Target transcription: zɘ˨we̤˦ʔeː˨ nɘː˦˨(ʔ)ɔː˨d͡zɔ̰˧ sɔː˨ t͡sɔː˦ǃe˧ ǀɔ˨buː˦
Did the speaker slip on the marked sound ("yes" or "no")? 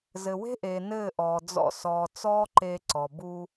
no